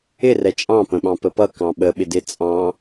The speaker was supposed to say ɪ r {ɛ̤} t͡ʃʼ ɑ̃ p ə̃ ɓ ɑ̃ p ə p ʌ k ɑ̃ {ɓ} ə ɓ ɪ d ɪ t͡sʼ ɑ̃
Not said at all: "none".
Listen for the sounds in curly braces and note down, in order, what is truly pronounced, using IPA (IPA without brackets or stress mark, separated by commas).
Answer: ɛ, ɓ